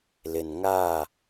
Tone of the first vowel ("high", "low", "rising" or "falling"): low